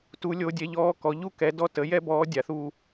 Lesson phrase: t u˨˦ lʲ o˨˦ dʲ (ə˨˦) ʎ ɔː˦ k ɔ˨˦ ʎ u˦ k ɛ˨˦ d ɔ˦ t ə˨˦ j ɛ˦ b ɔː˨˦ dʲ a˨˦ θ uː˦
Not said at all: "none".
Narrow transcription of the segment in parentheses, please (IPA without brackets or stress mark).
ɛ˨˦